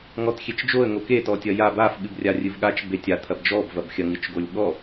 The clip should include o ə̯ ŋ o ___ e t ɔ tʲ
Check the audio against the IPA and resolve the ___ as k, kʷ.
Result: k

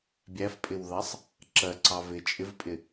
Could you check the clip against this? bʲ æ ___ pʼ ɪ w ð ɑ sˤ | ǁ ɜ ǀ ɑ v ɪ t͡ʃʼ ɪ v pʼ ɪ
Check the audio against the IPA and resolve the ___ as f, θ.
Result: f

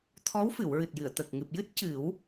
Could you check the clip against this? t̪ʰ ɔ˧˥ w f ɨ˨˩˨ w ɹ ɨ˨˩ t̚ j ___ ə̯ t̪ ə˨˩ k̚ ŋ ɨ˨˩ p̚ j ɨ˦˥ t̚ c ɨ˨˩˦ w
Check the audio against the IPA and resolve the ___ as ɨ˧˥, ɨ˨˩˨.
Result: ɨ˨˩˨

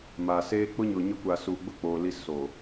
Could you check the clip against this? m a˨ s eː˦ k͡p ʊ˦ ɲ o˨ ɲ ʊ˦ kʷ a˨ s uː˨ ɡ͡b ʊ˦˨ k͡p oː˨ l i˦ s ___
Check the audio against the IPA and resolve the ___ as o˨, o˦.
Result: o˨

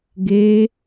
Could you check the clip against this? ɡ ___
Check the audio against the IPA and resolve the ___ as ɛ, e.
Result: e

